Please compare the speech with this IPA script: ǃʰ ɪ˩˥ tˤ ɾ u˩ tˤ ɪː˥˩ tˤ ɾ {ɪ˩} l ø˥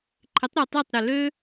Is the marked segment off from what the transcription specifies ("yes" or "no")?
yes